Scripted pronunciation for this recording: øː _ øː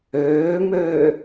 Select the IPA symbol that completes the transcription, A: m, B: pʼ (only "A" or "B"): A